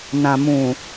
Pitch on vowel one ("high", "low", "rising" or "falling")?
low